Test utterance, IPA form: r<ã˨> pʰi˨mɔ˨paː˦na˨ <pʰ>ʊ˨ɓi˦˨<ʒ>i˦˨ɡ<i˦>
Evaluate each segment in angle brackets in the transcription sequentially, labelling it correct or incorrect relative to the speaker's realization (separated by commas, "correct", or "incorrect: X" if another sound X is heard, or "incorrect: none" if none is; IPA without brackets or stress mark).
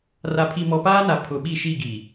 incorrect: a˨, correct, incorrect: ʃ, incorrect: i˨